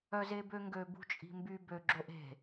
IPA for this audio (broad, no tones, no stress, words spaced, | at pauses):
œzebøŋɡø bṳt͡ʃʼi̤mby bø ɡ͡ǁoʔe̤